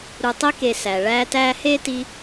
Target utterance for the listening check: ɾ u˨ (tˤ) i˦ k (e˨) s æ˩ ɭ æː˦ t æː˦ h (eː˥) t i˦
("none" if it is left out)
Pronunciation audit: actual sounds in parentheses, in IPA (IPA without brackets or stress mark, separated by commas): tˤ, e˨, eː˥